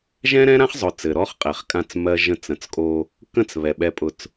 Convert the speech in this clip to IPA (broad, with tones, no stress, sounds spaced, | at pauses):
ʒ ɛ̃˦ ɾ ɛ̃˦ ɾ ã˦ χ zˤ ʊ˨ t͡s ɘ˨ ɾ ɔ˦ χ qʼ ɛ˨ χ kʼ ã˦˨ t͡s m ɜ˦ ʒ ə̃˦ t͡s ə̃˨˦ t͡s kʼ o˦ | k ə̃˦ t͡s β ɛ˨ ɓ ɛ˦ pʼ ʊ˦˨ t͡s